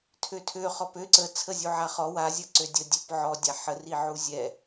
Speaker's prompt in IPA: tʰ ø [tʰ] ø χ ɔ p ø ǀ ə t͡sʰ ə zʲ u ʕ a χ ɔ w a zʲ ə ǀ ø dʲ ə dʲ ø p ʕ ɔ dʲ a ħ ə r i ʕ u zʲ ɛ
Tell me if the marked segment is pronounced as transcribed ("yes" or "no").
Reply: yes